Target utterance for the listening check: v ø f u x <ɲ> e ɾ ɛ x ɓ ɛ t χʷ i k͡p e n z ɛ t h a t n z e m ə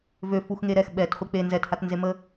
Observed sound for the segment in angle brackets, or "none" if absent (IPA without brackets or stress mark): ŋ